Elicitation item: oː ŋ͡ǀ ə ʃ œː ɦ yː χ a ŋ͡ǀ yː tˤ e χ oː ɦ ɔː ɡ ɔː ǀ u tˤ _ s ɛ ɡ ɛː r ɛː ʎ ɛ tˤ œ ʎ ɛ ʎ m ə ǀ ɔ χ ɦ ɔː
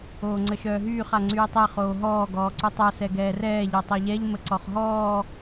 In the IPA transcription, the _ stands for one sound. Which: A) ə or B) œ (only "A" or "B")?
B